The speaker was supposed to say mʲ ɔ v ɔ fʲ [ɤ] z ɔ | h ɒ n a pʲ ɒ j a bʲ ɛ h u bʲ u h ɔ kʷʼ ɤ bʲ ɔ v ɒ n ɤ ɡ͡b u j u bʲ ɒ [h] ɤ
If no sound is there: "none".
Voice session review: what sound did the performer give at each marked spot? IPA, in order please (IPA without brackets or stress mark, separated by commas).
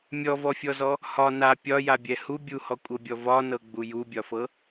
ɔ, f